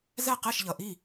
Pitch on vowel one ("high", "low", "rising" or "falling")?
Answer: falling